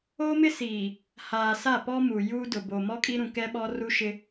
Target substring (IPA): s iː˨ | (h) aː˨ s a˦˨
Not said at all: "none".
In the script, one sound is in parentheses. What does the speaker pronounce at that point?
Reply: h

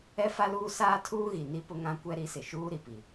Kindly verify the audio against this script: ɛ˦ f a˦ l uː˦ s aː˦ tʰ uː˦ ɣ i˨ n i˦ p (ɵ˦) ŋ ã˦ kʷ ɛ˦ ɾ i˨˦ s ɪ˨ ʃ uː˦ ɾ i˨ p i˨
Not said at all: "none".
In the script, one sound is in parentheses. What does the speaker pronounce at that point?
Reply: ʊ˦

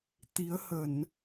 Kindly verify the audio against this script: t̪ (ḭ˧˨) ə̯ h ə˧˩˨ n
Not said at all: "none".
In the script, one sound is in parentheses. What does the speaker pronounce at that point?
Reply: i˨˦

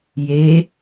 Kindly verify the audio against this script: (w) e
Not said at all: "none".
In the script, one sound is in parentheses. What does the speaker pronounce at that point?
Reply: j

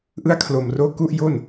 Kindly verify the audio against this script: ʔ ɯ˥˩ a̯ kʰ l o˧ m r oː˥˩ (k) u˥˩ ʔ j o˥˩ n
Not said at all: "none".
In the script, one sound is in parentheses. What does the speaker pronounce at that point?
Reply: k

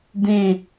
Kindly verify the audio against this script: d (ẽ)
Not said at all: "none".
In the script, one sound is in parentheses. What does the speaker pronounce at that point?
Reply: ẽ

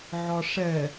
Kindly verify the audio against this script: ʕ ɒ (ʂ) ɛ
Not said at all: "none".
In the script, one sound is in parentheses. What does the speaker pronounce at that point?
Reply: ʂ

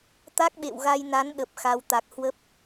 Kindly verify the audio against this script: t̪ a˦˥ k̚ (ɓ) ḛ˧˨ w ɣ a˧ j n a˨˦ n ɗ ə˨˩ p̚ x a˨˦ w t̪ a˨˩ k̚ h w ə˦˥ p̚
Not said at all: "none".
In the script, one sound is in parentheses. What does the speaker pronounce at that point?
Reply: ɓ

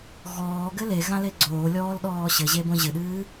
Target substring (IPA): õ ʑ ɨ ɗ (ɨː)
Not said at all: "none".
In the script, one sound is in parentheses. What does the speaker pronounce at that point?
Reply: ɨː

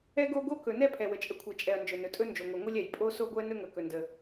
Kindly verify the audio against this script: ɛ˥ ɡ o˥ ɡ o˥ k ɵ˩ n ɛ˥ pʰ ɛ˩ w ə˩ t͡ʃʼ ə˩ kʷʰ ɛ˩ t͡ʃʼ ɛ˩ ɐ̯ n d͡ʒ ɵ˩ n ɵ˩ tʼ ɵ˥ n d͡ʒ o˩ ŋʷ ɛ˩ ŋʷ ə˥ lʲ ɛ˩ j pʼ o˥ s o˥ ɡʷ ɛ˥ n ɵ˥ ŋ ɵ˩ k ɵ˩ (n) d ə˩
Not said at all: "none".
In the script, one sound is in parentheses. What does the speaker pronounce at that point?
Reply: n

